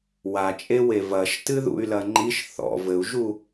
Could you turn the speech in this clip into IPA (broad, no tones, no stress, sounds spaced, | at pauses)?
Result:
w a t͡ʃʼ e w e v ɐ ʃ t ɨ ð ṵ y̯ l ɐ ŋ͡ǃ i ʃ θ ɔ̰ v ɘ u̯ ʒ u